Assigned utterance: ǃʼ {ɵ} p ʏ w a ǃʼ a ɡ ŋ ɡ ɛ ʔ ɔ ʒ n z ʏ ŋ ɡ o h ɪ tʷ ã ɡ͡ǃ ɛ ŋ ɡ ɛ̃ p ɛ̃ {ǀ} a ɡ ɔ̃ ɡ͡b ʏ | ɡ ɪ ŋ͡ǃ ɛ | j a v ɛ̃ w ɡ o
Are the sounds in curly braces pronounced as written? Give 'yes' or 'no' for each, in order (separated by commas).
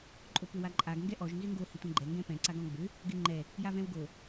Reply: no, yes